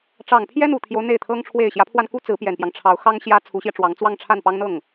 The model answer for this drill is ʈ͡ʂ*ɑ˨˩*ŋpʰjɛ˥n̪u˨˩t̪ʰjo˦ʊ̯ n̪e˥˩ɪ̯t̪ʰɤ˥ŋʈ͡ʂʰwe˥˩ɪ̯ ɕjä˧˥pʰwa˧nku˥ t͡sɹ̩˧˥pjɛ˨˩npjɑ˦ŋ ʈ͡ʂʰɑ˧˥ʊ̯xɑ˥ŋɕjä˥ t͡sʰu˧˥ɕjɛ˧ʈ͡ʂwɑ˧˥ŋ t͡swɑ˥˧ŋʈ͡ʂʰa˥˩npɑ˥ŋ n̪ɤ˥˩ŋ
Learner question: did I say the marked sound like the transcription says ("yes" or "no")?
yes